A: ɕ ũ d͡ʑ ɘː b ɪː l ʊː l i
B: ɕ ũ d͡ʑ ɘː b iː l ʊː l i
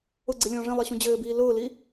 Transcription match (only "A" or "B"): B